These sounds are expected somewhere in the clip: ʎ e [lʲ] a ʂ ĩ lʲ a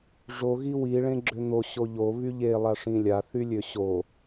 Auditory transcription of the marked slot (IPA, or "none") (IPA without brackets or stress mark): lˠ